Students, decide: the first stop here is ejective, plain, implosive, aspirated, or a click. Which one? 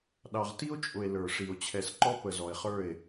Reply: implosive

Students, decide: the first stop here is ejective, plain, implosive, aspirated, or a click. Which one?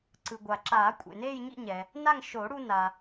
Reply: click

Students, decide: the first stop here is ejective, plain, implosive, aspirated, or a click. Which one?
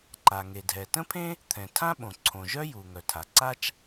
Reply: click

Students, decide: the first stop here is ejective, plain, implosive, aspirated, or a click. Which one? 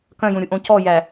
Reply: plain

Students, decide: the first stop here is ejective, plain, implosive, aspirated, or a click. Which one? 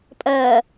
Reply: ejective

